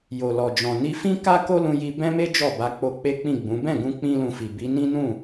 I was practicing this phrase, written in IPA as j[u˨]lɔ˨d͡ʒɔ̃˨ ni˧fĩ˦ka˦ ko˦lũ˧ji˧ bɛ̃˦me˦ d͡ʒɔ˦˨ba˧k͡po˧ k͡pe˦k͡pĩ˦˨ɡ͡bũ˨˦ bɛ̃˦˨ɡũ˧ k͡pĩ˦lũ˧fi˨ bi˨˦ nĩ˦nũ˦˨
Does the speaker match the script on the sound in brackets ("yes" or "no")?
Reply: no